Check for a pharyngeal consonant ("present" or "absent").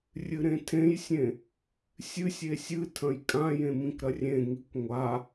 absent